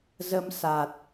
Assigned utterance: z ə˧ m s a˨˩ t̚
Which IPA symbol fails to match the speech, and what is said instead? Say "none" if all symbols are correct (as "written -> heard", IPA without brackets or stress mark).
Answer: none